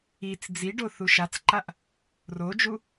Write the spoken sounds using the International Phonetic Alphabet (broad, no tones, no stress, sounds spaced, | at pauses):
i t͡s d͡z i ɖ o θ u ʃ a t͡s ǃ a ʔ | r o d͡ʒ u